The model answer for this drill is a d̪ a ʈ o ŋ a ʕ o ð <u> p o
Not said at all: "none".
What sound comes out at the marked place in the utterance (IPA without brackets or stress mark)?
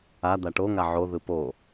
ɯ